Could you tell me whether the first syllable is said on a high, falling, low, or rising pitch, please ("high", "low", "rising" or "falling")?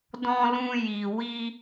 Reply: high